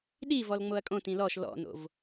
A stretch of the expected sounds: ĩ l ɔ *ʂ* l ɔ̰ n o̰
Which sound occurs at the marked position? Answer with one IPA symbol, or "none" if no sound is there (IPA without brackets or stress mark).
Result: ʃ